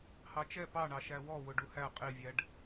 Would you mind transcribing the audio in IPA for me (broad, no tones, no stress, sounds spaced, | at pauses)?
h ɑ t͡ʃ ɛ p ɑ ɳ ɑ ʃ æ w ɔ w ʊ ɖ u h æ qʼ i vʲ æ ɖ